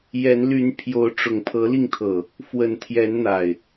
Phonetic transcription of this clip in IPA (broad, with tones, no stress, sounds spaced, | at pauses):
j ɛ˨˦ n l y˨˦ n pʰ j o˨˦ ʊ̯ ʈ͡ʂ ʊ˨˩ ŋ pʰ ɤ˨˦ l i˧ ŋ t̪ʰ ɤ˨˩ | f w ə˨˩ n t̪ʰ j ɛ˨˦ n n̪ a˨˩ ɪ̯